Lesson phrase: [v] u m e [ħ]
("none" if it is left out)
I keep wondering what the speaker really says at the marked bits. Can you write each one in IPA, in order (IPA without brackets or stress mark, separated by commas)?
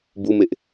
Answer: b, ʔ